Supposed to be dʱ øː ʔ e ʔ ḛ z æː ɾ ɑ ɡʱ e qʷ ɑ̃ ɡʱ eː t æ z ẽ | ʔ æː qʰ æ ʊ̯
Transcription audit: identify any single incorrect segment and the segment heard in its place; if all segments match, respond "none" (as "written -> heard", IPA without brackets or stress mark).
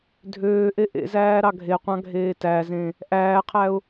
none